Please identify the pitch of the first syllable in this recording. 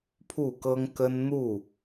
falling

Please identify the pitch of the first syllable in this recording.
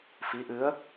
rising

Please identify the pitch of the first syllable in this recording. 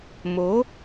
rising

